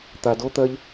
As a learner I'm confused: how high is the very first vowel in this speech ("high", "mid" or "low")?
low